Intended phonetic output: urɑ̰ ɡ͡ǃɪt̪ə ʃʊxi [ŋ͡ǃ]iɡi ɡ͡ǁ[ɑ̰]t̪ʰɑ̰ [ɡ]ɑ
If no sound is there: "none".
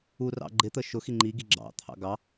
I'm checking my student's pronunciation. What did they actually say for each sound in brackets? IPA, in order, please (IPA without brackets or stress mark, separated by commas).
ŋ͡ǃ, ɑ̰, ɡ